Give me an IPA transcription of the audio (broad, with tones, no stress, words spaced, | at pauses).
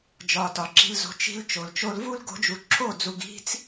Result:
d͡ʒɒ˧tɒ˨ǁi̤˧lzo̤˧ t͡ʃi̤˧l t͡ʃo˨l t͡ʃo˧lvu˦l ɡo̤˧d͡ʒu˨ǁʰo˦˨d͡zu˨ɡ i̤˧t͡s